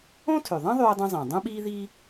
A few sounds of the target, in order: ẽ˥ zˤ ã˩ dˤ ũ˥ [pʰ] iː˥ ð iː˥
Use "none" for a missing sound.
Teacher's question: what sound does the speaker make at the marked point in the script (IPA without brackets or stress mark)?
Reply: ɓ